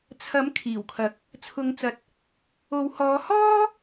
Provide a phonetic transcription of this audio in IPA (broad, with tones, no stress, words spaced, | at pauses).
t͡sʰɐ˨˥m kʰiː˨˩wkʰɐ˨˥k̚ | t͡sʰʊ˨˧ŋt͡sɐ˨t̚ | o˨˧w hɔː˨˧hɔː˥